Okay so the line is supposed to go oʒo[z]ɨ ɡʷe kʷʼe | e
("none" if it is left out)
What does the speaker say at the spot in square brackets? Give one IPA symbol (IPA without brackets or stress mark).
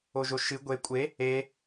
ʃ